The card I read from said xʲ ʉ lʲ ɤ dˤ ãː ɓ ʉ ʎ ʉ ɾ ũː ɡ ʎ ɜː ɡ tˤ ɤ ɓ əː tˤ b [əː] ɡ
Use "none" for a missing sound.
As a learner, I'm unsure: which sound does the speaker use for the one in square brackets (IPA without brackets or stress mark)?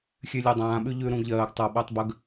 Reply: ə